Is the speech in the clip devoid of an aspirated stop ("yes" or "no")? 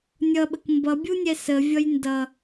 yes